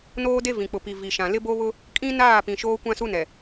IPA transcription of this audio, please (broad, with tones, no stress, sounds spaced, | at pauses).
n oː˦ d e˦ v ĩ˨ k͡p ʊ˨ p i˨ v i˨ ʃ ã˨ l ɪ˦ b o˦ β ʊ˦ | kʼ ĩ˦ n aː˦˨ p ĩ˨ ʃ oː˦ kʷ ã˦ s u˦ n ɛ˨